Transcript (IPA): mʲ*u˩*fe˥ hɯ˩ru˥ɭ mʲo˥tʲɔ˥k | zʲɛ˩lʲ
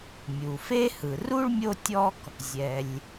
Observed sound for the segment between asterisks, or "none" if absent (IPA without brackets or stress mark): u˩